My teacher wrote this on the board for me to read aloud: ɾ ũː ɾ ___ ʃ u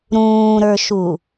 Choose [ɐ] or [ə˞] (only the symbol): ə˞